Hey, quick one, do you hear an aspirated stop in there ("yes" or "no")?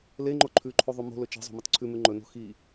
yes